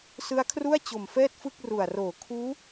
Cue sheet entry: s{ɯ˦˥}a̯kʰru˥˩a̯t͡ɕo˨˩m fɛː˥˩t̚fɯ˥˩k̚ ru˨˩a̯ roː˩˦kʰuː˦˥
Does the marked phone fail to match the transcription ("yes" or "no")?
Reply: no